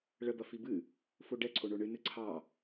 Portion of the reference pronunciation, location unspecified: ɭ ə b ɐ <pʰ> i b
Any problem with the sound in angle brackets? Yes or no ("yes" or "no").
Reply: yes